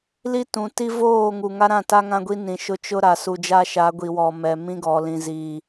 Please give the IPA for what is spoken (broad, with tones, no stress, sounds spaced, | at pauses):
l i˦ t ũ˨ t i˦ v oː˦˨ ŋ u˨ ŋ a˦ ɾ ã˦˨ t a˦ ŋ ã˦ ɡʷ i˦ n ĩ˨ ʃ ʊ˦˨ t͡ʃ ʊ˦ ɾ a˨ s u˨ d͡ʒ a˦ ʃ a˨˦ ɡʷ i˨ w ɔ˨ m ɛ˨ m ĩ˦ ɡ ɔ˨ l ĩ˨ z i˨